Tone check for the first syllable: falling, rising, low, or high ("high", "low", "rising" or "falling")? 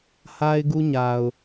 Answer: high